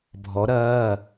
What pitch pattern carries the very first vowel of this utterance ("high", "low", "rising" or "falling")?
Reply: rising